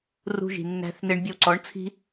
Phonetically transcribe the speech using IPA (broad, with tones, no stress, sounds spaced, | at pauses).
r ṳ˧ ʒ i̤˨ nː æ̤˧ θ n ɪ˧ ɳ bʲ ə˧ w ǀ ɔ˨˦ ɳ t͡sʰ i̤˦